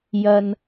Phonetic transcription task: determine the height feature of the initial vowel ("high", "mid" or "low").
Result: low